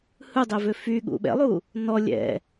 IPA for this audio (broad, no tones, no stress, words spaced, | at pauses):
hɯdˤɛvø fyɠṵ ɓɛ̰lˠu | nɔ lʲɛ̰